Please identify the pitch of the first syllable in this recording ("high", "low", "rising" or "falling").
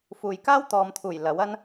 low